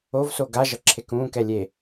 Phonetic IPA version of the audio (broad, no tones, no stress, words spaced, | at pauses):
ovso ɡa ʒʌǁʰekũːkɛ lʲe